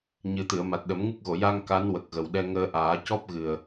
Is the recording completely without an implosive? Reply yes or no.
no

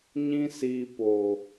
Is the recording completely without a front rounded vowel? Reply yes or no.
yes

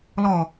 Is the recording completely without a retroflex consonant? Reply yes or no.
yes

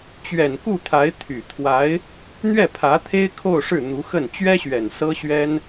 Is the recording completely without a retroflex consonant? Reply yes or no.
no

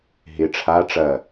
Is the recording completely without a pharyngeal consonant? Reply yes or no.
yes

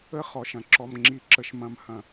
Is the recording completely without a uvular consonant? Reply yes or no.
no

